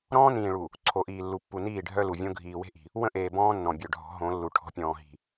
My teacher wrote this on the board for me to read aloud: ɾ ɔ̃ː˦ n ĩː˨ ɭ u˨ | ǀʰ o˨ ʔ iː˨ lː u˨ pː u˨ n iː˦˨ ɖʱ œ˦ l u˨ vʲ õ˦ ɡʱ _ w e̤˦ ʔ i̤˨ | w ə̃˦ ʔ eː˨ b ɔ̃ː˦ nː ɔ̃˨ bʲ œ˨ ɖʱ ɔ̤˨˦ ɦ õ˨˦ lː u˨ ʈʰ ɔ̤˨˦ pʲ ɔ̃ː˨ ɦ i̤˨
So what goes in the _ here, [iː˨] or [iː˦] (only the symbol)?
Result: iː˨